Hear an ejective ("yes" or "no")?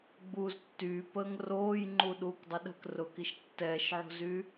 no